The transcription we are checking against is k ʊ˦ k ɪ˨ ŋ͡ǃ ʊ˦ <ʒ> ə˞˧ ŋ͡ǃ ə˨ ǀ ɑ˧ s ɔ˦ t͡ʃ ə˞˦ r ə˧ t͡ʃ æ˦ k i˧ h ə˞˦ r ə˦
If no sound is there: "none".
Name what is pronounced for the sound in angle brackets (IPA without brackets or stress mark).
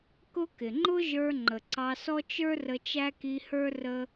ʒ